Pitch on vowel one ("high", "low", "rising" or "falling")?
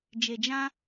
low